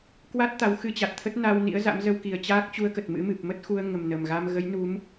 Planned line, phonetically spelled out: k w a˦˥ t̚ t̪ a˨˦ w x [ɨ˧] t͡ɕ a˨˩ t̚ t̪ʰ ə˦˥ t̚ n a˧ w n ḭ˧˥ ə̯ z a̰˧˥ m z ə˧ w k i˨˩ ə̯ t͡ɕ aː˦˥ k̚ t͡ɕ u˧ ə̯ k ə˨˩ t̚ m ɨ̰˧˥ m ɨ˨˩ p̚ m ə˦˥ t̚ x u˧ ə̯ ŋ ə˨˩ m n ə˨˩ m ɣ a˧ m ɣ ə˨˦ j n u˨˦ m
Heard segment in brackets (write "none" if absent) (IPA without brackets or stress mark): ɨ˧